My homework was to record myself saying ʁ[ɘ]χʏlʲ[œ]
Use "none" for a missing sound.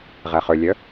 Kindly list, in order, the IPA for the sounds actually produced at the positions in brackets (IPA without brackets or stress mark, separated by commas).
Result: ɛ, œ